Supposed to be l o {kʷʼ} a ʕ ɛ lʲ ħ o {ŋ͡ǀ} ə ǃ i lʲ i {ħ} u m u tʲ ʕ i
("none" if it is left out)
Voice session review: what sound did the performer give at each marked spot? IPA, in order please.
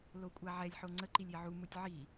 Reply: kʷʼ, ŋ͡ǀ, ʕ

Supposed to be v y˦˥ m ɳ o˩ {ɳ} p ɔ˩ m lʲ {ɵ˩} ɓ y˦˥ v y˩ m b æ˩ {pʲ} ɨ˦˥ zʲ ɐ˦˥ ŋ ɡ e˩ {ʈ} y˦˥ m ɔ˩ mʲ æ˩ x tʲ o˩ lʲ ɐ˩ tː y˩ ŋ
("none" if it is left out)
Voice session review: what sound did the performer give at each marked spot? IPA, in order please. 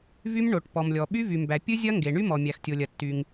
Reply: ʈ, ɔ˩, pʲ, ɳ

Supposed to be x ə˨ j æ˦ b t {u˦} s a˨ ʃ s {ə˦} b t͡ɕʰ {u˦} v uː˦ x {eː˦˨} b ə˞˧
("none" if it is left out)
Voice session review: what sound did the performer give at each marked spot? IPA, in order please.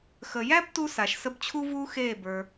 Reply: u˦, ə˦, u˦, eː˦˨

